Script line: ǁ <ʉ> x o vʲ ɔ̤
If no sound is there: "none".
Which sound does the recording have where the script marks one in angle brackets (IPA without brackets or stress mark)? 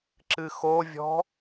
ɨ